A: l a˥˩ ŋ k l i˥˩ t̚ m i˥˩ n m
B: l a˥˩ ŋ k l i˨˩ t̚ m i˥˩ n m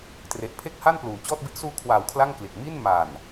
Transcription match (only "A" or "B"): B